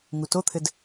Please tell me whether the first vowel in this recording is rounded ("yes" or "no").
yes